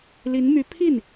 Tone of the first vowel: rising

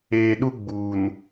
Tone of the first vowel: low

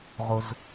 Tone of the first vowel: low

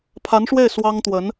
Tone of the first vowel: rising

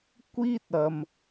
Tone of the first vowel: high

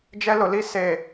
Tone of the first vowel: high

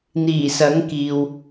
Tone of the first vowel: low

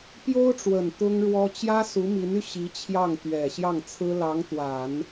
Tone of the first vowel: high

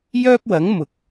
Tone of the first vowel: high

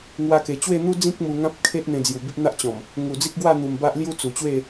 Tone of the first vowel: high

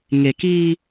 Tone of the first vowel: low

